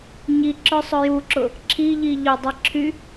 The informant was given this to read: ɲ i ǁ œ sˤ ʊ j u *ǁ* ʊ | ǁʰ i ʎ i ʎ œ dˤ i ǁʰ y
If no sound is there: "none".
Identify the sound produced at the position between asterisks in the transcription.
ǁ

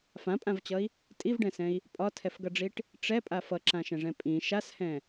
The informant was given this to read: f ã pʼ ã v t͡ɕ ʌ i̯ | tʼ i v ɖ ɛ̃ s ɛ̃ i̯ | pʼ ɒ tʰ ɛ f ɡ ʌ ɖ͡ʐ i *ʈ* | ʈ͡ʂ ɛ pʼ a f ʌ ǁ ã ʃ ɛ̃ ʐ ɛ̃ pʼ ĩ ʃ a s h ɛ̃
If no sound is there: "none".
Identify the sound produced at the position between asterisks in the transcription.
ʈ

